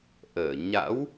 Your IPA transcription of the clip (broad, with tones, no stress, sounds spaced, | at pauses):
ʔ əː˧˩ ɲ a̰˧˥ w